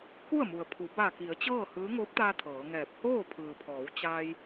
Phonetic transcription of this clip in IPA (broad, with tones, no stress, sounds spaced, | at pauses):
k u˥˨ ə̯ m u˩ ə̯ pʰ u˩˧ b a˧˩ k i˩˧ ə̯ t͡ɕ ɤː˥˨ h ɯː˧˥ ŋ oː˧˥ p̚ t̪ aː˧ t̪ʰ ɤː˩˧ ŋ ɛː˧˩ p̚ h oː˥˨ pʰ ɯː˩ pʰ ɔː˩˧ w t͡ɕ aː˧ j